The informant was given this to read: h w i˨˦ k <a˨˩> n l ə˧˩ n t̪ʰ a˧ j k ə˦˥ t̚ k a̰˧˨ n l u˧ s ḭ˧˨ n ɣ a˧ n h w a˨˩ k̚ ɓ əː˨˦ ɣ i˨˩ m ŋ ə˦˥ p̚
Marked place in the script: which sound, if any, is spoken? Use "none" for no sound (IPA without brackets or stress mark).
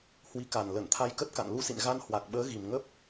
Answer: a˨˩